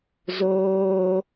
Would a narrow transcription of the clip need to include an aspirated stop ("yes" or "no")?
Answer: no